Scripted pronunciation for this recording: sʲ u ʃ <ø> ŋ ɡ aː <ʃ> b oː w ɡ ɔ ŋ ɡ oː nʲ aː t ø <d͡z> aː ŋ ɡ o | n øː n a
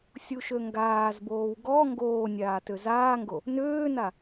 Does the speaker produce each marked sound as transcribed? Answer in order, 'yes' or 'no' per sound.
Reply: yes, no, no

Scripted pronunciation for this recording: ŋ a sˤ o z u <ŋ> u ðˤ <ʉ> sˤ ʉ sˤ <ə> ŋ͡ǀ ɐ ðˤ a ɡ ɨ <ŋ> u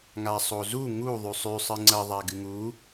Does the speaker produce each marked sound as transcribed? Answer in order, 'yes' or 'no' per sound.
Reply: yes, yes, no, yes

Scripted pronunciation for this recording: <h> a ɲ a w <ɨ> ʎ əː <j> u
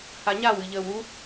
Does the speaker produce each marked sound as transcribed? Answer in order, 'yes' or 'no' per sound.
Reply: yes, yes, no

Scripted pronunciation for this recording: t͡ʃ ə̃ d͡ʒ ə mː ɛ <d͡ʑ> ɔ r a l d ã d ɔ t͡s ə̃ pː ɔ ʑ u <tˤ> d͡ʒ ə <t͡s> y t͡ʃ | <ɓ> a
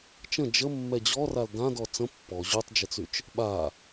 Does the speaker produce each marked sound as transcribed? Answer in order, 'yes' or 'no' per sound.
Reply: yes, yes, yes, yes

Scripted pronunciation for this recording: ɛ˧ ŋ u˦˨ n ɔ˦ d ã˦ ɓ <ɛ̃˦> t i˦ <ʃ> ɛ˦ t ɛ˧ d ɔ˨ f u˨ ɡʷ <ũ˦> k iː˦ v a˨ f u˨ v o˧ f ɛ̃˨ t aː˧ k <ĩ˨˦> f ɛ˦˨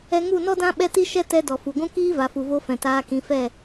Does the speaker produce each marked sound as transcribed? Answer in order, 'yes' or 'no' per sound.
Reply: no, yes, yes, yes

